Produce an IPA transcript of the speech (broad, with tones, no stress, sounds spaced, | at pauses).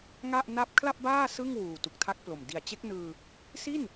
ŋ a˥˩ ʔ n a˥˩ p̚ kʰ l a˥˩ p̚ b aː˥˩ s ɯ˥˩ ŋ w uː˨˩ t u˨˩ k̚ tʰ a˦˥ k̚ p l o˨˩ m d i˨˩ a̯ t͡ɕ e˦˥ k̚ n ɯː˧ | s i˥˩ n